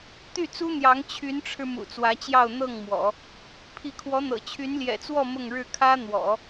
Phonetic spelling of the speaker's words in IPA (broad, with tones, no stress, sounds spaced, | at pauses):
t̪ y˥˩ t͡s u˥ n̪ j ɑ˧˥ ŋ t͡ɕʰ y˧˥ n ʈ͡ʂʰ ɻ̩˧ m ṵ˨˩ t͡s w ä˧˥ t͡ɕ j ɑ˥˧ ʊ̯ n̪ ɤ˥˩ ŋ m w ɔ̰˨˩˦ | pʰ i˧˥ kʰ w ɔ˧˥ n̪ ɤ̰˨˩ t͡ɕʰ y˧˥ n l j ɛ̰˨˩ t͡s w ɔ˥˧ m ʊ˥˧ ŋ ɻ ɻ̩˥˩ kʰ ä˥ n̪ w ɔ̰˨˩˦